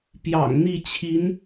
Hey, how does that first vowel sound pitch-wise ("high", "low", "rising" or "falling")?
low